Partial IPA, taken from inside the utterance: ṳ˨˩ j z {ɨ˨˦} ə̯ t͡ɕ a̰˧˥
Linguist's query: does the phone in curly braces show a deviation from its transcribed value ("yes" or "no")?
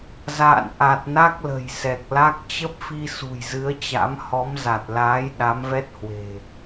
no